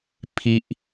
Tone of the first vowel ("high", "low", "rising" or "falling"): high